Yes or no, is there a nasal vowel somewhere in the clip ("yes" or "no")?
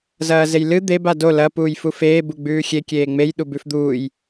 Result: no